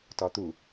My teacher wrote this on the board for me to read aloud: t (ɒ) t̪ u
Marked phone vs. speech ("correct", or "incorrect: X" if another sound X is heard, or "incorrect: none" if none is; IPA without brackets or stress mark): correct